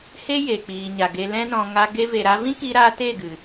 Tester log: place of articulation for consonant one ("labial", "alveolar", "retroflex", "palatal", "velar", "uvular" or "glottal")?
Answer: glottal